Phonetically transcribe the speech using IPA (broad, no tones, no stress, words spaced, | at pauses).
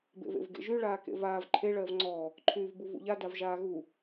bḛvḛvɡḛʒy ɭaːkḛvaːv ǃʰe ɭɜvŋ͡ǀɔː | ǃʰyːvbuvṵʎa davʒaːɣu